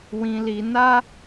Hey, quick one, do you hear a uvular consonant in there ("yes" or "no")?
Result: no